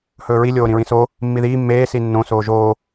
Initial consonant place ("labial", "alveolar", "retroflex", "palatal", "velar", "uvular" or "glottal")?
glottal